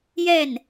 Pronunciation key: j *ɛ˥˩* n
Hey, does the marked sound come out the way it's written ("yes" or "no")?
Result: yes